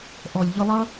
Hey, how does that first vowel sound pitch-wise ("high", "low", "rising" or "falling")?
low